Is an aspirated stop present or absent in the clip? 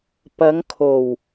present